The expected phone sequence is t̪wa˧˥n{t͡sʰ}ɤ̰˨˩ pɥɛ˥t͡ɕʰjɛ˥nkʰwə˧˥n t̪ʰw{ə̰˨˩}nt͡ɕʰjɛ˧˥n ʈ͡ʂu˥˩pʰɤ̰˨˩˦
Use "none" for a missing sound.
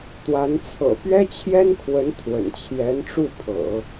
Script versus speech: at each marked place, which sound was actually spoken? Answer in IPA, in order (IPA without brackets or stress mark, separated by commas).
t͡sʰ, ə̰˨˩